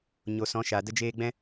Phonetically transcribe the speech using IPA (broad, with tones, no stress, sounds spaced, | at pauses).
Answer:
ɲ o˨ s ɔ̃˨˦ ʃ a˨ d ə˦ d͡ʒ eː˦ ɡ͡b ɛ̃˦